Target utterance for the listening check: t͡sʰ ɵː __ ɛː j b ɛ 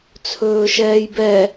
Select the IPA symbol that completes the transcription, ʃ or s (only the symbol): ʃ